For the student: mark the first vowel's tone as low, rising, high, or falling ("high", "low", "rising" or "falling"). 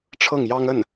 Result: falling